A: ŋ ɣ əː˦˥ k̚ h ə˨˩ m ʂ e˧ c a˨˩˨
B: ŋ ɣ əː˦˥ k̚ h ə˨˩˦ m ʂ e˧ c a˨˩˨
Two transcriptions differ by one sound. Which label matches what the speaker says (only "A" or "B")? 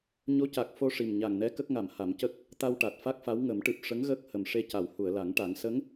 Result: A